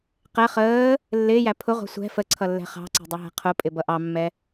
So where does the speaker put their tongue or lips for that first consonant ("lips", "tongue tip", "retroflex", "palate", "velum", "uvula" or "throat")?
uvula